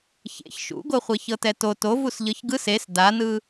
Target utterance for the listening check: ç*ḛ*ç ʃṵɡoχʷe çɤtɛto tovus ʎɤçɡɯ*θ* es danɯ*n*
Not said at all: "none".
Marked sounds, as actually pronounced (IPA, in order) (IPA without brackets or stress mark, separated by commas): ḛ, s, none